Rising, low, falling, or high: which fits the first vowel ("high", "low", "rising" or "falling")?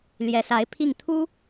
rising